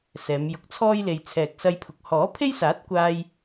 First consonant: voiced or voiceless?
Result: voiceless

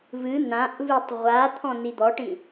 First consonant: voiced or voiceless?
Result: voiced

